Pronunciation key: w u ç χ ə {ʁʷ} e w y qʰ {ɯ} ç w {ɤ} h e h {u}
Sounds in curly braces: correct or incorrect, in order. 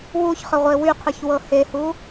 correct, correct, correct, correct

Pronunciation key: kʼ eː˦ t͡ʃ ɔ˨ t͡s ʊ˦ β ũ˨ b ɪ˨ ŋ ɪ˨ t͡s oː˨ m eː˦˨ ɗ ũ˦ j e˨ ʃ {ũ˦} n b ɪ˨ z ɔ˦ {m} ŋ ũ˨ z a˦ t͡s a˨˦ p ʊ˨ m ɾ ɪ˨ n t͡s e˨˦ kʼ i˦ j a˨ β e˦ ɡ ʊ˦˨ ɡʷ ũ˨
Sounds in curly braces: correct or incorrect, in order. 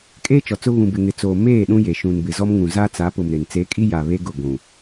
incorrect, correct

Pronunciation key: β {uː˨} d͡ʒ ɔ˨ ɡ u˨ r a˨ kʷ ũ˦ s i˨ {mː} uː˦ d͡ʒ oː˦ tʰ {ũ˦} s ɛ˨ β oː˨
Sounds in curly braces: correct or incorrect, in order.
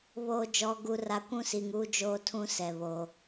incorrect, incorrect, correct

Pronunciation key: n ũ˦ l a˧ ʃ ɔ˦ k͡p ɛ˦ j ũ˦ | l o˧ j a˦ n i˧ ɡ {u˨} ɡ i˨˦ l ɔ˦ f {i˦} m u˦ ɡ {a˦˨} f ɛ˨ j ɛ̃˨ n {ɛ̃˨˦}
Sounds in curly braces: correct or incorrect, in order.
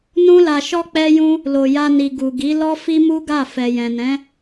correct, correct, correct, correct

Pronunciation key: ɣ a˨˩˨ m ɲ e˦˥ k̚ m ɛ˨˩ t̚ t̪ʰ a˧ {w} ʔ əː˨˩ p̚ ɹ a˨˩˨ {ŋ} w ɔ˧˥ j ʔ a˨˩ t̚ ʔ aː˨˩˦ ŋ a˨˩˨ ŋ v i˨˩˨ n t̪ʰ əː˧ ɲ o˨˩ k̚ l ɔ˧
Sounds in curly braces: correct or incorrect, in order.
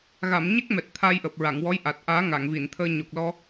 incorrect, correct

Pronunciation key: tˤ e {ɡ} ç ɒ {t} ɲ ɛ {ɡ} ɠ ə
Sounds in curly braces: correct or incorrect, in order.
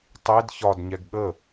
incorrect, incorrect, correct

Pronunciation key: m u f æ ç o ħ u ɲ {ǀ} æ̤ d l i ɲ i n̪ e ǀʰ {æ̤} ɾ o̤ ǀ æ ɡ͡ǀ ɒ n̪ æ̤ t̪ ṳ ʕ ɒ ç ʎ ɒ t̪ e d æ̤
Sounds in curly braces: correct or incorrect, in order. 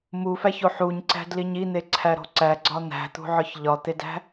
correct, incorrect

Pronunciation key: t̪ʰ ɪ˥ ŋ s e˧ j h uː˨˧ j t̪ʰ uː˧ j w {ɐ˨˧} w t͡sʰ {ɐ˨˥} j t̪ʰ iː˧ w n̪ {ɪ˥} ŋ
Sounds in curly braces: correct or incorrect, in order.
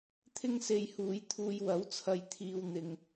incorrect, incorrect, incorrect

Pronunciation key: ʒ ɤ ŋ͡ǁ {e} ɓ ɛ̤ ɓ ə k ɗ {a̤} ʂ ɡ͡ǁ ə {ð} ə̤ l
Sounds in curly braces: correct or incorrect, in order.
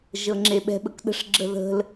correct, incorrect, correct

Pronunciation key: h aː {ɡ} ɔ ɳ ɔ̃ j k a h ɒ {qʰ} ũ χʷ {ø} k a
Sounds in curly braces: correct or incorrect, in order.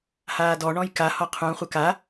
incorrect, correct, incorrect

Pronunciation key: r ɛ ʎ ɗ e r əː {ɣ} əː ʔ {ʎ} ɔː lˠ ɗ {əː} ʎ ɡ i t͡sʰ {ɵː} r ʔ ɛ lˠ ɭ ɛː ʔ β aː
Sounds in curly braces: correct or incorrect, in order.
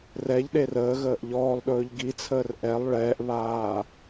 correct, correct, incorrect, incorrect

